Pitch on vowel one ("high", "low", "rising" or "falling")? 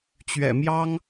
low